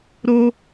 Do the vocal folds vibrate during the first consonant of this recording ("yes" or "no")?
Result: yes